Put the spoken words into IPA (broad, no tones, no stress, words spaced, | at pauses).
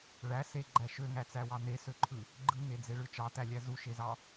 ɭæ seɡ͡ǃæ ʃøŋæt͡sæwɑ n̪esøǃʰɯ | ɡ͡ǃɯŋed͡zeɭɯ t͡ʃɑt̪ælʲæ zuʃezɑ